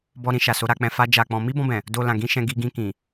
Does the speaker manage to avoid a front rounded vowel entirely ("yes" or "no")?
yes